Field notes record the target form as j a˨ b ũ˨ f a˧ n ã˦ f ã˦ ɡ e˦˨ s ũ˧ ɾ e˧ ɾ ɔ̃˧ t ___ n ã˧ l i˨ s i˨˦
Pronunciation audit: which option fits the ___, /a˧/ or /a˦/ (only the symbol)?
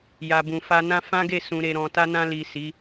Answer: a˧